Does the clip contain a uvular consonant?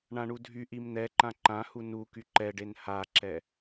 no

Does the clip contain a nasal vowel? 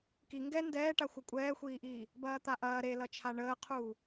no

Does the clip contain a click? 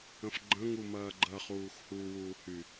yes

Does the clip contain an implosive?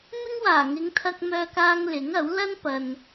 no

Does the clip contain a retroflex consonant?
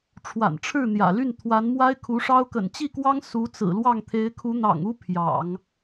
yes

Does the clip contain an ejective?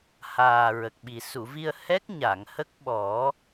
no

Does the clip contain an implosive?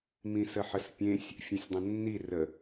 no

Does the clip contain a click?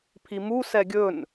no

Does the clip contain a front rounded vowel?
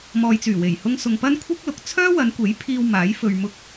yes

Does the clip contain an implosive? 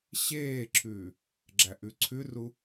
no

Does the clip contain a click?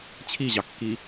no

